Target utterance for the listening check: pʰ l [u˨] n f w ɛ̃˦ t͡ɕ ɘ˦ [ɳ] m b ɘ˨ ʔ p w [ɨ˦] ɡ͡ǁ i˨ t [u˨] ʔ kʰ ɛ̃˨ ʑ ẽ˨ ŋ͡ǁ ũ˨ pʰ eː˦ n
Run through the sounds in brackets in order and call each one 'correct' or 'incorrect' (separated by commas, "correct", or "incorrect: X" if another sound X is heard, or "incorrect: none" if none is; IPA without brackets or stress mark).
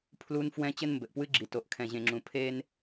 incorrect: u˦, incorrect: n, correct, incorrect: o˨